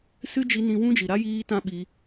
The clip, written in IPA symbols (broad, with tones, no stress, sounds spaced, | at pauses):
s ɨ˦ d͡ʒ i˧ n ĩ˧ w ũ˦ d͡ʒ i˨ ɾ a˦ j iː˧ t ã˧ ɓ i˧